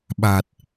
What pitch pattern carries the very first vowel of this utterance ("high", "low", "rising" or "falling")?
low